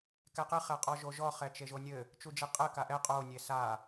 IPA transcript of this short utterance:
k ɛ q ɨ χ ɛ qʼ ɔ ʒ o ʒ ɔ χ ɛ t͡ʃ e ʒ o nʲ ɘ | t͡ʃ u d͡ʒ e qʼ ɘ k a ʔ ɛ qʼ o nʲ e s a

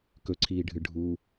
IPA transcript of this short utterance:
k ɵ ǀʰ iː ɖʱ ɨ ɖʱ uː

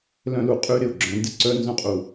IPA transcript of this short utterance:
l œ̃˦ l u˨ qʼ y˦ ɾ ɪ˨ ʊ̯ ɡ͡ǁ œ̃˨˦ n d ɪ˦ ǀ œ˦ n z œ̃˦ qʼ u˨

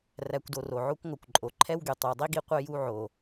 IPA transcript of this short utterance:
r æ˨ kʷ d o˨ r o˩ ʕ o˦ kʷ ŋʷ œ˩ kʷ ǃʼ o˩ ǃʰ ɛ˦ w ɡ y˩ tˤ y˨ w dˤ i˥ ɡ i˦ qʷ œ˦ j u˦ ʕ o˨

